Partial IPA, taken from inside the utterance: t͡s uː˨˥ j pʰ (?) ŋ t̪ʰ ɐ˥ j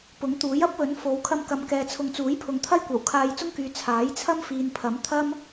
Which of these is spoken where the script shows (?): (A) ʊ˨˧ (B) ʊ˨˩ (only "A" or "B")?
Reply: A